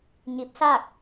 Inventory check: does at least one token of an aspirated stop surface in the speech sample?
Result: no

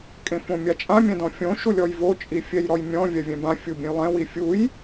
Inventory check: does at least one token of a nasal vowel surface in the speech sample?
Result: yes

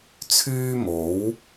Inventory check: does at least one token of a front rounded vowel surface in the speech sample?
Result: yes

